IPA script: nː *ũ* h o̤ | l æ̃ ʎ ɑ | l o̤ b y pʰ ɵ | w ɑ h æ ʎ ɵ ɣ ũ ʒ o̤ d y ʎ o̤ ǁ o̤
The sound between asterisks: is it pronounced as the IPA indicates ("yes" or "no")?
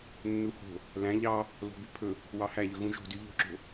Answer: no